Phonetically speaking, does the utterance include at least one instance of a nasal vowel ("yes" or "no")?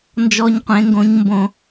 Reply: yes